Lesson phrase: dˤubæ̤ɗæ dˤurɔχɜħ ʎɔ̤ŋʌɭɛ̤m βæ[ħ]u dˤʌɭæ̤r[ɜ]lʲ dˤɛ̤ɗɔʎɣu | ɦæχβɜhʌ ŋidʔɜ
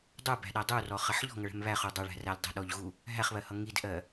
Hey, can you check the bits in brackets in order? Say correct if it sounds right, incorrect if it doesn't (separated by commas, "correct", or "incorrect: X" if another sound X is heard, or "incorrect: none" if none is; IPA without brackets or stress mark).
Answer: incorrect: χ, incorrect: æ